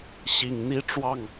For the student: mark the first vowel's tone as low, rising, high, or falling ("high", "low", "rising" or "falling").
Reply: low